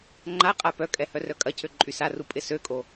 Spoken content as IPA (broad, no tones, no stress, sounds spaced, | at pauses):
ŋ͡ǃ a qʼ a p œ kʼ ɛ h œ r œ kʼ ɐ cʰ ø ǃʼ y s a r u pʼ ɪ s ø kʼ o